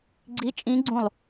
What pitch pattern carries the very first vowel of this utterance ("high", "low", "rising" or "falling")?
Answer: rising